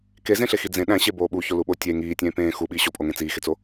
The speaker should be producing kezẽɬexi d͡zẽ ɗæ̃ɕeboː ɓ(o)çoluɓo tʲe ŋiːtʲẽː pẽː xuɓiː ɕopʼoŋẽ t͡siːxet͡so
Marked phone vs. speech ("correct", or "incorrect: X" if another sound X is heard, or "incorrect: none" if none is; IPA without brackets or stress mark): incorrect: u